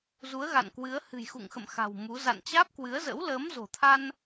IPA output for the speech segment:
z u˨˦ ə̯ ɣ a̰˧˨ n k w ɨ˨˦ ə̯ h ɨ̤˨˩ j x ṵ˧˨ ŋ x ə̰˧˨ m x a̤˨˩ w m u˨˦ z a̰˧˨ n t͡ɕ aː˦˥ p̚ k w ɨ˨˦ ə̯ z ə̰˧˥ w l əː˨˦ m z o̤˨˩ t̪ʰ a˧ n

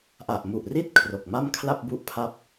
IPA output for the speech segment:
ʔ a˨˩ ʔ m u˨˩ ʔ r i˥˩ t̚ kʰ r o˨˩ k̚ m a˥˩ m kʰ l a˥˩ p̚ b u˥˩ ʔ pʰ a˥˩ p̚

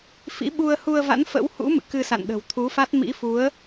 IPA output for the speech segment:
f ḭ˧˥ ɓ u˧ ə̯ h u˧ ə̯ v a̰˧˥ n f ə̰˧˥ w h ṵ˧˥ m ɨ̰˧˨ k ɨ˧ s a̰˧˨ n ɗ ə̤˨˩ w t̪ʰ u˨˦ f a˦˥ t̚ m ḭ˧˥ f u˨˦ ə̯

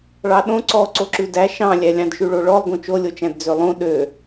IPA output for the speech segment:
ɭ ɑ ɗ õ ǀ ɔ ǀ o ǁ ʉ d æ ʃ ɑ̃ lʲ æ lʲ ɑ̃ d ʃ ʉ ɭ o ɭ ɔ lˠ ɡ õ t͡ʃ o lʲ o t͡ʃ æ̃ d d͡z ø lˠ õ ɗ ø

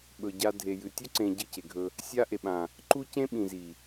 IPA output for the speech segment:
ɓ ɵ˨ ɟ a˧ dʱ e˨ j ɨ˨ tʲ ɵ˦ ǀ ẽ˧ ɟ ɨ˦˨ c e˨ ɡʱ ɵ˧ | sʲ a˦ ʔ e˨ ɓ ã˨ | ǃ u˦ c ẽ˦ ɓ ĩ˨ z i˨

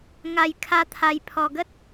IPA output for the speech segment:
ŋ a˨˩ j kʰ a˧ t̪ʰ a˧ j pʰ ɔ˨˩ ɡ ə˦ t̚

